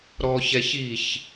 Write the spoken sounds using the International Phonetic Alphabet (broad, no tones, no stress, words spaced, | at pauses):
ɾɔçɛ çiç